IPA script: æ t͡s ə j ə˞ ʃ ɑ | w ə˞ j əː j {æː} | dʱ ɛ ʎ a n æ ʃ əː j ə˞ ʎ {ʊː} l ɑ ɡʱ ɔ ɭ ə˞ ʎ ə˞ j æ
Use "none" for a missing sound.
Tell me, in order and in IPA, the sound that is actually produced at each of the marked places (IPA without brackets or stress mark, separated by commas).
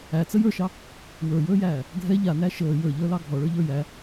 æː, əː